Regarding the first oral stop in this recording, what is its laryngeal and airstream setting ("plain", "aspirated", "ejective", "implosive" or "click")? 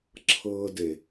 click